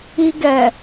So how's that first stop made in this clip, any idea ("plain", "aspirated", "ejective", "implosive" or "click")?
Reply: plain